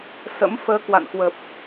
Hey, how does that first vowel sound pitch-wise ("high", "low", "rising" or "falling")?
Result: rising